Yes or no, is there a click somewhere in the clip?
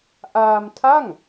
no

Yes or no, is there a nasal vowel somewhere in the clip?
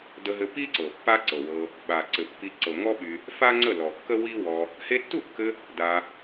no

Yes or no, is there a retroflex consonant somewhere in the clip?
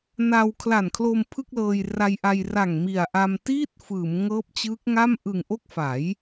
no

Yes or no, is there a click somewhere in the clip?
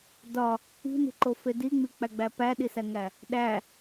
yes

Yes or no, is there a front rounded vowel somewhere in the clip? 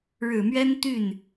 yes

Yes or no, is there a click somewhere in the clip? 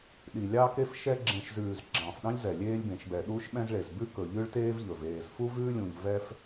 yes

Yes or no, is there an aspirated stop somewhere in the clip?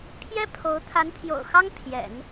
yes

